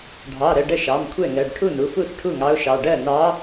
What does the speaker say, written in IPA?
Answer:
ɖʱ ɑ˩˧˩ ɾ ə˩˧˩ ɖ ə˥˩ ʃ ɑ˩˧˩ m kʷʰ ɛ˥˩ ŋ ɜ˩˧˩ ɖ ʈʰ u˥˩ n u˩˧˩ f u˥˩ s ʈʰ u˥˩ ŋ ɑ˧˥ ʊ̯ ʃ ɑ˩˧˩ ɖ ɜ˥˩ n ɑ˧˥

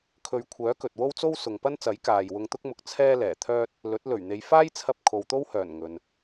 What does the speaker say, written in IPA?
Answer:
kʰ ɵ˨˧ ɥ kʷʰ œː˨˥ k ɵ˨ t̚ w o˥ w t͡s o˥ w s ʊ˨ ŋ p ɐ˥ n t͡s ɐ˨˥ j k aː˨ j w ʊ˧ ŋ t̪ ʊ˥ k̚ m ʊ˧ k̚ t͡sʰ ɛː˥ l ɛː˨˩ t̪ʰ œː˥ t̚ | l ɵ˨˥ t̚ l ɵ˨˩ ɥ n̪ e˨ j f aː˥ j t͡sʰ ɐ˧ p̚ kʰ o˨ w t̪ o˥ w h œː˨˩ n ŋ ɵ˨ n

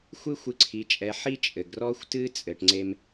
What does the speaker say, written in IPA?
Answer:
xʷ ɨ˥ xʷ ɨ˧ ǀʰ i˩˧ t͡ʃʼ ɛ˩˧ ħ i˥ t͡ʃʼ ɘ˩ ɡ r ɔ˥ xʷ t ɨ˥ t͡sʼ ɘ˩ ʈ ŋ͡ǀ e˧ m

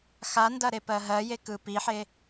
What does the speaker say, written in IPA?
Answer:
x a n d ɐ ɾ e p ɜ ɦ ɜ j e k ɯ p i ħ e

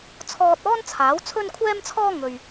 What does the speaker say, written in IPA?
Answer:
t͡sʰ ɔː˧ t̚ ɔː˥ n t͡sʰ aː˨˥ w t͡sʰ ɵ˥ n kʷʰ ɛː˥ m t͡sʰ ɔː˥ ŋ ɵ˨ ɥ

